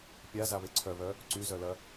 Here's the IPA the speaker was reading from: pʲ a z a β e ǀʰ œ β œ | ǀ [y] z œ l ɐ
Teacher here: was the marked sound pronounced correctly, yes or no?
yes